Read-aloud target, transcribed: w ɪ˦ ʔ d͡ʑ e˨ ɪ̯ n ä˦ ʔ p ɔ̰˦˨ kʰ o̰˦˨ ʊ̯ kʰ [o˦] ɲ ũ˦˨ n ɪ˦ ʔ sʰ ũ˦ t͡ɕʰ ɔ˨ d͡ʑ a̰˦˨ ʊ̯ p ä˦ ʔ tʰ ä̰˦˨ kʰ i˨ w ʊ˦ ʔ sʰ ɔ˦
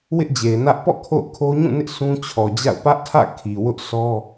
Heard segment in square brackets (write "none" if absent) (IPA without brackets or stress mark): o˦